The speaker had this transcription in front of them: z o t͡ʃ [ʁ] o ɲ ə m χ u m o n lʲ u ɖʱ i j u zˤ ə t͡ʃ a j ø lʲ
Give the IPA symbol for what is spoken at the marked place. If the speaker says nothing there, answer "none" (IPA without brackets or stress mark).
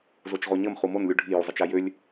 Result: ʁ